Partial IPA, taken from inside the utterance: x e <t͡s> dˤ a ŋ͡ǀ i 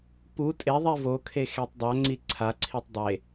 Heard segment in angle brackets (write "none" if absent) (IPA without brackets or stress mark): tˤ